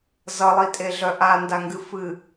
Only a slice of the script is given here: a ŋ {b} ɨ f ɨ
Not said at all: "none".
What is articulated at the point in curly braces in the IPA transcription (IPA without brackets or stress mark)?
ɡ